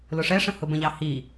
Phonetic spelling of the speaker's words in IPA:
l ʊ ʂ ɛ ʂ ə̃ h ʊ b ə̃ ʎ ɑ h i

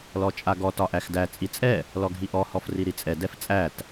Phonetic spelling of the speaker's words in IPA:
l ɔ t͡ʃʼ a ɡ ɔ t ɒ ʔ æ x d æ t͡sʼ i t͡sʼ ɛ | l ɔ ɡʱ i ʔ ɔ h ɔ f r i ɾ i t͡sʼ ɛ d ɛ f t͡sʼ æ t

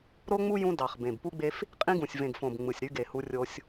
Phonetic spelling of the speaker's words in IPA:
ɾ o˦ ŋ͡m u˦ j ũ˦ d ɑ˨˩ χ b ẽ˨˩ b p u˦ ɡ͡b e˦ f | qʼ ĩ˦ ɡ ũ˨˩ sʲ v ẽ˨˩ ɡ f õ˨˩ b ŋ͡m ɯ˨˩ sʲ ɾ y˦ ɡ e˨˩ h u˦ rʲ o˦ sʲ

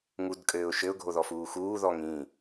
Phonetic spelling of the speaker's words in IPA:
ŋ u d kʼ ɘː ʊ̯ ʃ ɘ ʊ̯ ɡʱ o ð ɔ f uː x uː ð ɔ ŋ ĩ

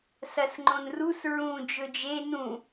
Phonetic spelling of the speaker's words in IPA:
s ɐ s ŋ͡ǃ õ n r u s ɹ ũ d͡ʒ ɵ d͡ʒ e n ũ

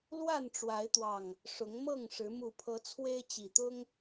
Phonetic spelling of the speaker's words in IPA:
l w a˥˨ n ʈ͡ʂ w a˨˦ ɪ̯ t̪ w ɑ˨˩ ŋ | ʂ ʊ˨˦ ŋ m ɤ˥˨ ŋ ʂ ɻ̩˨˦ m u˨˩ pʰ ɤ˨˦ t͡sʰ w e˦ ɪ̯ t͡ɕ i˨˩ t̪ ʊ˦ ŋ

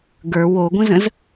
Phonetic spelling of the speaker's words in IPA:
ɡ ə˞ w o ɡʷ ə̃ z ə̃ z

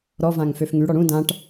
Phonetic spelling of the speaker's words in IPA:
ɾ ɔ v ã ŋ f ø f ŋ y ɽ ɔ ɽ ũ d ã ʈ

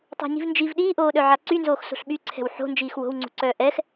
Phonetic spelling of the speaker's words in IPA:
tˤ ṳ ɲ i̤ v n d͡ʒ i v ɗ iː ʔ oː ɗ œ ʕ a ǀ y n z oː x s o̤ ɬ ɓ y ǀʰ ɛ̤ w ħ o̤ n d͡ʒ iː x w o̤ w ŋ͡ǀ ṳ ǀ œː ʔ ɛ x

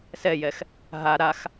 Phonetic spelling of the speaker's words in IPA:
s ɛ j ɛ x | ɦ a ɾ a x

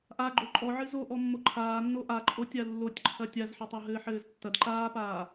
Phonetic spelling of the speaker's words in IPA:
ʔ a ɡ͡ǃ o ǃʼ ɔ ʕ ɨ z o ʔ ɔ mː o ǃʰ aː nː o ʔ a ǃʼ o tʲ a lː o tʲ ǃʰ ɐ tʲ a z ħ ɐ tˤ o ɦ ɘː ħ ɘː z tː ɐ d ǃ aː p aː

